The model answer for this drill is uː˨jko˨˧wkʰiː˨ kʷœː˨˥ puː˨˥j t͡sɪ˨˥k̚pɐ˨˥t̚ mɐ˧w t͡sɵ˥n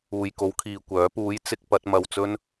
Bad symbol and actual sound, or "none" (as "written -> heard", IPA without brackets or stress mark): none